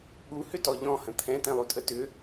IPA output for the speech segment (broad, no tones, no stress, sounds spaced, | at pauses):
ɠ u h ʏ t ɔ ʎ ɔ̃ h ə̃ t̪ʰ ɛ̃ t̪ ɛ̃ lˠ u tʼ ə t ʏ